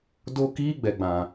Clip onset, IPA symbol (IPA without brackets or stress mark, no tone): d